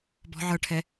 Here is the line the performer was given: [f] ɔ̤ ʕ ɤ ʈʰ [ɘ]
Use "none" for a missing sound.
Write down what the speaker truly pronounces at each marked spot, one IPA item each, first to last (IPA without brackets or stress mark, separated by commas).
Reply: b, ɛ